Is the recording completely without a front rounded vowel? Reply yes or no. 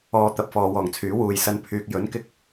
no